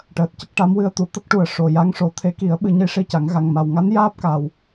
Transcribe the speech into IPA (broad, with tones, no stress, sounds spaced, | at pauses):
ʈ əː˨˩ t̚ c ə˦˥ k̚ ʈ a˧˥ m w ɨ˧ ə̯ t̪ u˨˩˨ t̪ ə˦˥ k̚ ʈ u˨˩ ə̯ ʂ o˨˩ j a˧˥ ŋ ʂ o˨˩˦ t̪ʰ e˧˥ k i˨˩˦ ə̯ ɓ ɨ˧ ɲ i˧˥ ʂ i˧ c a˨˩˦ ŋ ɣ a˨˩ ŋ m a˨˩ w ŋ a˧˥ n j aː˦˥ p̚ k a˨˩ w